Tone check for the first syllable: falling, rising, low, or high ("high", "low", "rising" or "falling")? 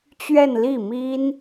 falling